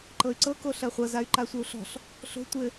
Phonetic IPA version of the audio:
ǃ ɤ y̯ ǀ ɤ k o ɬ ɜ χʷ ɤ z a y̯ ǃ a sʷ ɘ u̯ ɬ ɔ̤ ɬ | ɬ o̤ tʷ ɘ

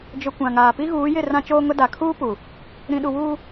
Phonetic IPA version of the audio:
d͡ʒ ʊ˨ kʷ ã˨ ŋ aː˨ p i˦ ɣ uː˨˦ j ɪ˦˨ r ã˦ t͡ʃ oː˦ ŋ ʊ˦ d a˨ kʰ uː˦ p u˨ | ɾ ĩ˨ ɗ u˨ w uː˦

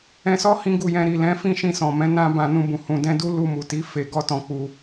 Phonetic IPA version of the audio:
ɛ̃˧ s ɔ˦ h ĩ˦ ɡ u˦˨ j ɛ̃˧ ɾ i˨ l ɛ̃˨˦ f ĩ˦˨ ʃ ĩ˧ s ɔ̃˨ m ɛ̃˨˦ n ã˦ b ã˧ n ũ˧ b ũ˨ h ũ˨ d ɛ̃˧ d u˦ l u˧ m u˨ t i˨˦ f e˧ ɡ ɔ˦ t ɔ̃˧ k͡p u˧

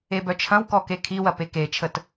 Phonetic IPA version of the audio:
e b œ t͡ʃʰ ɐ̃ w k ɔ k e kʰ i w ɐ p e k e t͡ʃʰ ə t

